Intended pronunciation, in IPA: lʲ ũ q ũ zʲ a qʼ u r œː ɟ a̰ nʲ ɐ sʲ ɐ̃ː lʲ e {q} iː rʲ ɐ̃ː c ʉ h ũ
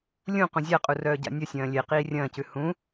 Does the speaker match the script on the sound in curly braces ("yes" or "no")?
yes